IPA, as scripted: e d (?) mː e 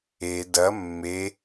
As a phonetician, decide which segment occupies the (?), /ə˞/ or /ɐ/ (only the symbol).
ɐ